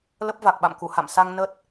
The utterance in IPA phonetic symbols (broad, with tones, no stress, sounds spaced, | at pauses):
l ə˦˥ p̚ v a˨˩ k̚ ɓ a̰˧˨ m k u˧˩ h a̰˧˨ m s a˧ ŋ n ə˦˥ t̚